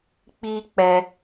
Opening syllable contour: high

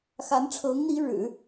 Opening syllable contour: rising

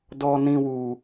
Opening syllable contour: high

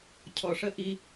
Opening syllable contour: low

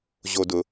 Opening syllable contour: low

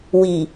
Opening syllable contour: low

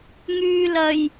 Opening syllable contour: low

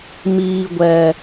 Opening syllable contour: low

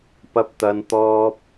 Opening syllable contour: high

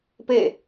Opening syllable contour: falling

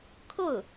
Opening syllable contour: falling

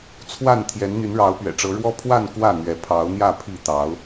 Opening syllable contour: falling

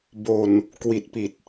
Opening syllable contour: low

